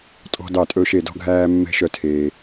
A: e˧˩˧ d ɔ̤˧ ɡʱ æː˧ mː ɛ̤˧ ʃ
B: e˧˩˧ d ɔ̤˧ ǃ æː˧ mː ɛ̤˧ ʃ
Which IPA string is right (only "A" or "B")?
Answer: A